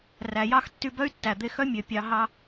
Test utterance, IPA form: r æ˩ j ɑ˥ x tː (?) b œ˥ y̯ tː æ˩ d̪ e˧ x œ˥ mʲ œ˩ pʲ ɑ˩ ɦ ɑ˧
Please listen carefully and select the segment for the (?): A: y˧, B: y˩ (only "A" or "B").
A